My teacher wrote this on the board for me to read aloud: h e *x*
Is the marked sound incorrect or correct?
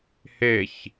incorrect